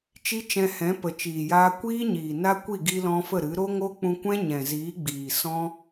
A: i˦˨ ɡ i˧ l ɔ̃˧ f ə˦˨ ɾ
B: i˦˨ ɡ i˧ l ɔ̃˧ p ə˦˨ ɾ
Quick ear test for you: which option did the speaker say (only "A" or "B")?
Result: A